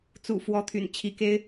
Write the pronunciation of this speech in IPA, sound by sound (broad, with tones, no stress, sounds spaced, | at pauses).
t͡s ṵ˨˩ f w ɔ˨˦ t̪ʰ y̰˨˩ n t͡ɕʰ i˨˦ k e˦ ɪ̯